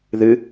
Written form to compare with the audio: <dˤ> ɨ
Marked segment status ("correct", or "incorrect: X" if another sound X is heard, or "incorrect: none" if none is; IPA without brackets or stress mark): incorrect: ð